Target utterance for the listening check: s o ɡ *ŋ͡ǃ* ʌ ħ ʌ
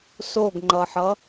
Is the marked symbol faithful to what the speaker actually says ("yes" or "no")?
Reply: yes